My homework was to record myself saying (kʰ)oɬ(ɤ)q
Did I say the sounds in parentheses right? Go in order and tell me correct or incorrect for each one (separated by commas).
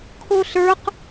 correct, incorrect